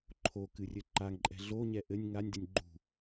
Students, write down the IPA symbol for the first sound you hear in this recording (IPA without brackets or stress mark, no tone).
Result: ǃʰ